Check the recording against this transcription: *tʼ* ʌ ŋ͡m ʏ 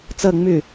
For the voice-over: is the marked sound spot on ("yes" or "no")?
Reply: no